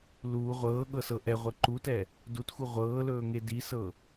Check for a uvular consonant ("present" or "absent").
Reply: present